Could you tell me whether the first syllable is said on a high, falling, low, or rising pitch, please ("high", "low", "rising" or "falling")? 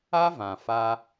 high